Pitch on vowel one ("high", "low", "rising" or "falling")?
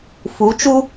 rising